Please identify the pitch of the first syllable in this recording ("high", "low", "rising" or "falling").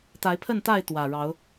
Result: rising